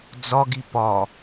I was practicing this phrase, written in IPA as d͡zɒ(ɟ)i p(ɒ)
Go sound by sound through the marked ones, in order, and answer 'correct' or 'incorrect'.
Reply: incorrect, correct

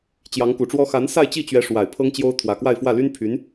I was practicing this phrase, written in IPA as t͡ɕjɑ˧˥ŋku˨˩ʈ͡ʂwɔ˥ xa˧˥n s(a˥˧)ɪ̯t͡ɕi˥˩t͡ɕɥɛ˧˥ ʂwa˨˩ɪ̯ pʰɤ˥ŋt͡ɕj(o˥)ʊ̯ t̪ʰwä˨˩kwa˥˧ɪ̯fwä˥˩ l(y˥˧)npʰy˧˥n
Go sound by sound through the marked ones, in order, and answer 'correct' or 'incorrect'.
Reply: correct, correct, incorrect

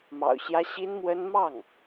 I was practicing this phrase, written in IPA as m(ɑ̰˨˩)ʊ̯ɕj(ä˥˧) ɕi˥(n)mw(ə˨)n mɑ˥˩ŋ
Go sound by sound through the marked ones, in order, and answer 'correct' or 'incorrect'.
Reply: correct, incorrect, correct, incorrect

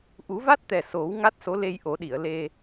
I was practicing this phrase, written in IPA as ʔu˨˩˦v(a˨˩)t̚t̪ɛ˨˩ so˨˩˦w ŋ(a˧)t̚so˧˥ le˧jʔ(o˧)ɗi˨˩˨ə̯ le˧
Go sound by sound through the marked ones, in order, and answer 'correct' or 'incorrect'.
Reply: incorrect, incorrect, incorrect

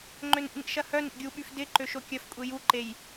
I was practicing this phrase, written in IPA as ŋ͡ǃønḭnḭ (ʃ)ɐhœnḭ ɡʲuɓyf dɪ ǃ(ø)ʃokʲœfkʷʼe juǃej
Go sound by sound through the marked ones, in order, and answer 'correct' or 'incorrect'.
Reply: correct, correct

